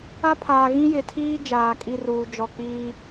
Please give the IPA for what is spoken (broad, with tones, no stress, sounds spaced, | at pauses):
a˦ pʰ aː˨ ɣ ĩ˦ j ɪ˨ tʰ iː˦ d͡ʒ aː˨ kʼ i˦ r uː˨ d͡ʒ ɔ˨ k͡p iː˦